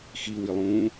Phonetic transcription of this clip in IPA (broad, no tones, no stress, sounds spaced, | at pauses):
x i w i lˠ ũː